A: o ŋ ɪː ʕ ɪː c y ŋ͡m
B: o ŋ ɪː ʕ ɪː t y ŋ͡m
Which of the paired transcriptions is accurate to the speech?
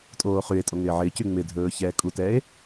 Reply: A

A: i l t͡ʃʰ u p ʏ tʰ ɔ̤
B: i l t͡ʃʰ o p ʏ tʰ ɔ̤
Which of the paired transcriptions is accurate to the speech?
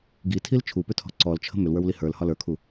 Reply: A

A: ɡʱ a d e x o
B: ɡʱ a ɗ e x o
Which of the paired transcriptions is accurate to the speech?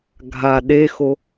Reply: B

